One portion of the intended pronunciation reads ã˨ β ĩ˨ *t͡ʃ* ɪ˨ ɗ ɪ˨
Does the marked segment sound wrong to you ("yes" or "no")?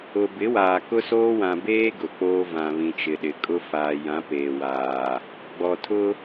no